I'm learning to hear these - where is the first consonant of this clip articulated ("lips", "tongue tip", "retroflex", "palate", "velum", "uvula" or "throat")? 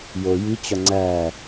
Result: palate